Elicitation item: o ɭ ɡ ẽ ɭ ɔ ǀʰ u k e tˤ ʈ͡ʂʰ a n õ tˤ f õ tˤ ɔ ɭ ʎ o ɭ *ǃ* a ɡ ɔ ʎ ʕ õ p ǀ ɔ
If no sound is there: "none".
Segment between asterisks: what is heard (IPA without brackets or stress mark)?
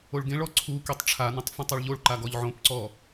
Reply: ǃ